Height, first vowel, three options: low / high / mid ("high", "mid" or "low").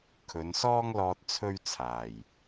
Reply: mid